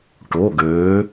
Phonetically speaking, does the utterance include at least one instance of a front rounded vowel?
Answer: yes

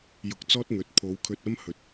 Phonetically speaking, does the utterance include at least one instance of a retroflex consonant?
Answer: no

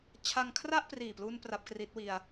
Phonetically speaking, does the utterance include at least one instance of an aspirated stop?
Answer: yes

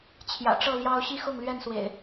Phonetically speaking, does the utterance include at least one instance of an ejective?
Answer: no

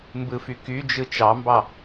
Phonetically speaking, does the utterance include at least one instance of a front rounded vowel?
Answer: yes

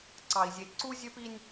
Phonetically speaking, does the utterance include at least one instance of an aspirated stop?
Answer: no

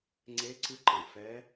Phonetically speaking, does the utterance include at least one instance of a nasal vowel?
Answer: yes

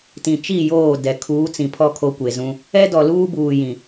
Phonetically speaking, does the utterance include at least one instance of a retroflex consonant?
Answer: no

